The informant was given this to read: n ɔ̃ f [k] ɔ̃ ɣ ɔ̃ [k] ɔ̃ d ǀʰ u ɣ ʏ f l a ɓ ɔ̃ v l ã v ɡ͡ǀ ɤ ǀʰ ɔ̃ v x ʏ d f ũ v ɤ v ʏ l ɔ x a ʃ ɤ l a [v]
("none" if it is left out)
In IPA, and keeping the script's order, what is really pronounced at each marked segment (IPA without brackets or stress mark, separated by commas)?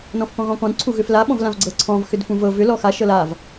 k, k, v